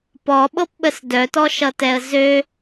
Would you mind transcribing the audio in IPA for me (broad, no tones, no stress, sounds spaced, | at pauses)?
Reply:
p ɔ ɓ ɤ p ɓ ə s d œ t ɔ ʃ ʌ t ɛ ə̯ z ø